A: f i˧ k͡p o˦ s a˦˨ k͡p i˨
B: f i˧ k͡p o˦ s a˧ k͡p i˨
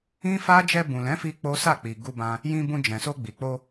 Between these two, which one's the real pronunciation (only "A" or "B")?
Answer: A